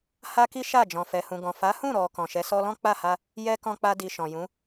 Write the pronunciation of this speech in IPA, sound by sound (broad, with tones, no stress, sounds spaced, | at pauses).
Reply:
h a˦ k i˦ ʃ a˦˨ d͡ʒ ɔ̃˨ f ɛ˨ h ũ˨ ɡ ɔ̃˨ f a˨˦ h ũ˦˨ ɾ ɔ˨ k ɔ̃˨ ʃ ɛ˨˦ s ɔ˦ l ɔ̃˦ k͡p a˦˨ h a˧ | j ɛ˦ k ɔ̃˦ k͡p a˧ d i˨ ʃ ɔ̃˨ j ũ˨˦